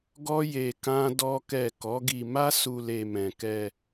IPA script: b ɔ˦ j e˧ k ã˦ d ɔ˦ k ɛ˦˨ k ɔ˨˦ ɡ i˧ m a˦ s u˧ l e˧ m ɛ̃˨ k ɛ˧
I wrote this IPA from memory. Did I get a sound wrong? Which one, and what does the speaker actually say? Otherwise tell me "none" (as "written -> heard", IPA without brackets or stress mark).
b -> ɡ